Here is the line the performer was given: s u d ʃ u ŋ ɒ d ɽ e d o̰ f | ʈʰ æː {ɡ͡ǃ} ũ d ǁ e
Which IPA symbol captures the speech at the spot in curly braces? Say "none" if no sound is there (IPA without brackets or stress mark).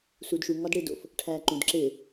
ǃ